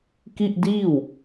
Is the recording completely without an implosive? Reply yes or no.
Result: yes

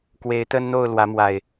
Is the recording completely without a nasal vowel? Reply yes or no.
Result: yes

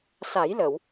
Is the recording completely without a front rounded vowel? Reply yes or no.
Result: yes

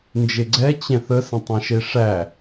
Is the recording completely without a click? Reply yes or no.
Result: no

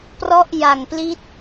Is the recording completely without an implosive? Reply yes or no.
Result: yes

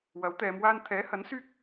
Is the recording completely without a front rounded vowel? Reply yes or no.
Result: no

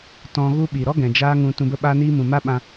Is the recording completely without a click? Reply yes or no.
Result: yes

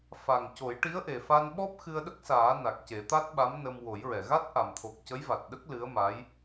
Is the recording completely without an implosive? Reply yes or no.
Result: no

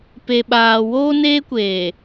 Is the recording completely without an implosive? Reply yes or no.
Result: no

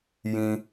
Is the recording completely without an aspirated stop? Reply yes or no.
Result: yes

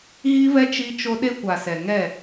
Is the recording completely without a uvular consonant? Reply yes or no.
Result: yes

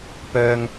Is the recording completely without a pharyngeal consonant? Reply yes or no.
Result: yes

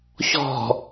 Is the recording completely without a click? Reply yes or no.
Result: yes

